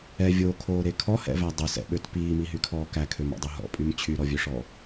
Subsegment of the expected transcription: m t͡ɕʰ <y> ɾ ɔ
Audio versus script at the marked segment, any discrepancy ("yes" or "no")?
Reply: no